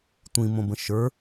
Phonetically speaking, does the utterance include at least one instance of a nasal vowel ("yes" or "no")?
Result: yes